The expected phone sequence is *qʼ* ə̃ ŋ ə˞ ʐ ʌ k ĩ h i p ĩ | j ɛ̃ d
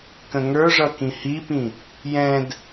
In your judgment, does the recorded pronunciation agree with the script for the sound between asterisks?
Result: no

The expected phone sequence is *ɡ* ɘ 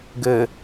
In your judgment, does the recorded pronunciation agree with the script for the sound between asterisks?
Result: yes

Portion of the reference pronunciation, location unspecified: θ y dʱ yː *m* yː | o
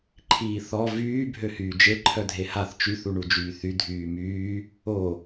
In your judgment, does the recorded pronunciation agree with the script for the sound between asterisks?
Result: yes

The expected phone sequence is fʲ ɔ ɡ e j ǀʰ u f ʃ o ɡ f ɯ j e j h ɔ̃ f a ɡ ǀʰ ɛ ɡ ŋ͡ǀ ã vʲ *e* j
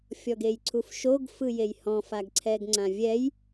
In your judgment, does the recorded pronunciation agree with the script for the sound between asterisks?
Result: no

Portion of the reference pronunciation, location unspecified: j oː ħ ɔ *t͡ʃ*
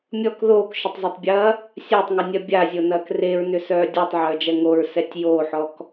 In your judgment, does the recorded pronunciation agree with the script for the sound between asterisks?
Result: no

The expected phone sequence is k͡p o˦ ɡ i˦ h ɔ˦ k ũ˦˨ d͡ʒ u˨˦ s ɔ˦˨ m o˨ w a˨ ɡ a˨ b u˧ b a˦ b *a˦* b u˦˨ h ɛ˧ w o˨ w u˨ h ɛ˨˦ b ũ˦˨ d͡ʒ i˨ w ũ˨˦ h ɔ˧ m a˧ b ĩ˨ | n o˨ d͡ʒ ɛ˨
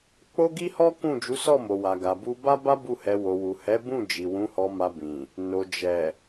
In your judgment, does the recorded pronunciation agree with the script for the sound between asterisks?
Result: yes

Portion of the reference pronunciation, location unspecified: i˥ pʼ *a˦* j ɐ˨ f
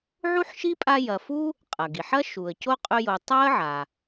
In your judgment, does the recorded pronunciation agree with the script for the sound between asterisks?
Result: yes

